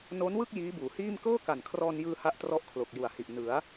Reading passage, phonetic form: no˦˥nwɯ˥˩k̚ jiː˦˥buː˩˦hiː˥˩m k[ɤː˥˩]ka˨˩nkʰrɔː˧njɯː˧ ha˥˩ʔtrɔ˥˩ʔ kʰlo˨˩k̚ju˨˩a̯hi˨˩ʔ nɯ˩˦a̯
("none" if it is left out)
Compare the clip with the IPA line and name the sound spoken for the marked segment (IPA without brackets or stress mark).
ɤː˥˩